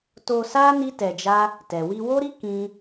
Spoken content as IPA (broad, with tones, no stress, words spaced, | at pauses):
to˧sa˦ ni˦tɛ˧d͡ʒa˦ | tɛ˨wi˧wo˦ɾi˦ kĩ˦